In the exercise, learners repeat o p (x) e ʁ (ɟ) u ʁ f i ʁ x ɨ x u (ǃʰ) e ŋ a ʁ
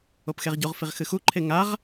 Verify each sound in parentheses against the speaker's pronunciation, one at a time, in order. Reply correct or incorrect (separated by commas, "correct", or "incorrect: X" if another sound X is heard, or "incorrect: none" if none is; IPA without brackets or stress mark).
correct, correct, correct